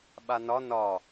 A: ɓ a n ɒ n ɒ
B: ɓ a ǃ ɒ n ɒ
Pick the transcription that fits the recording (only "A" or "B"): A